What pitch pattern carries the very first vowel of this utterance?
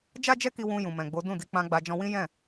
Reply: high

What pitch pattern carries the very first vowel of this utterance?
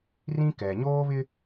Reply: high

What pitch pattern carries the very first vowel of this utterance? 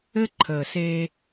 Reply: high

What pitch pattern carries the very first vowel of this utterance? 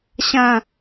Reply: falling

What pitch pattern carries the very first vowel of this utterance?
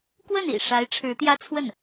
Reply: falling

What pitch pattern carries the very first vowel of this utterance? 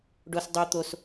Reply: high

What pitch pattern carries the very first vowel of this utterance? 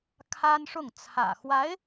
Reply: high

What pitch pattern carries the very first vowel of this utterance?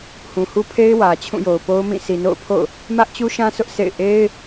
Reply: low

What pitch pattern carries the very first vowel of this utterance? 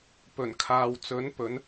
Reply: low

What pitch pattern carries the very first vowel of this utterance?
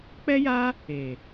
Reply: high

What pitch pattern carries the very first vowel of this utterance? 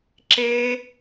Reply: high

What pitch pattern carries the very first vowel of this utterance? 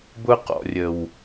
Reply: high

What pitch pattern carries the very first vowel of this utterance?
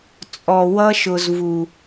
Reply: low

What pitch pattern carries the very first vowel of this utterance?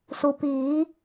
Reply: low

